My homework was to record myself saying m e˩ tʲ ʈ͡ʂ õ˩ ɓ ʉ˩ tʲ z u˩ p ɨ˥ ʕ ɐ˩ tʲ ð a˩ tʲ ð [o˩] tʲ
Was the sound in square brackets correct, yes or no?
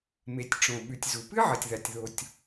yes